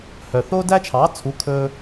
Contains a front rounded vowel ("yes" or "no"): yes